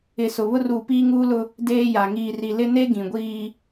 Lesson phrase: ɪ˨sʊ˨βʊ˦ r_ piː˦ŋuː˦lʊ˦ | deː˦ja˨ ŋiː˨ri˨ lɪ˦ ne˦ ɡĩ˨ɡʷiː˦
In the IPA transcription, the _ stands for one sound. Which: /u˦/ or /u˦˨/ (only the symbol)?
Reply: u˦˨